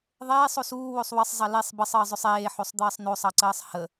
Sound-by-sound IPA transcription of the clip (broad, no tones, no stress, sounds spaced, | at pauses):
ðˤ eː sˤ o s uː w o sˤ w ə sˤ zˤ ɑ l e sˤ b ə sˤ əː zˤ ɵ sˤ eː ħ o sˤ d̪ əː sˤ n o sˤ ɑ ǀ əː sˤ h ə